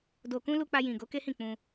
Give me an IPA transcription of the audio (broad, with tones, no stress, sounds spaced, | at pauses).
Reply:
d o˧ k ũ˦ l u˧ k͡p a˧ j ĩ˨ ɡ o˨˦ k e˦ h ĩ˦˨ k͡p ũ˧